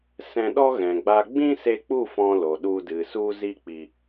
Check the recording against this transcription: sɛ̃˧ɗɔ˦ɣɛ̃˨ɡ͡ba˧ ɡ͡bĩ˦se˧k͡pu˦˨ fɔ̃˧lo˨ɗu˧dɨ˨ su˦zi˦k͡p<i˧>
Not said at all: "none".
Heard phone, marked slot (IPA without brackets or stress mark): i˧